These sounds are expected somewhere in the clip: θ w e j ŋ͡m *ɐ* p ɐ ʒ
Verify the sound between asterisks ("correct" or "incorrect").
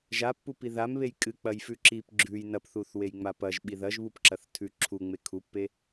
incorrect